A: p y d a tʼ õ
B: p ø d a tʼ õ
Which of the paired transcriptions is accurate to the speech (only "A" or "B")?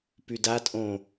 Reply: A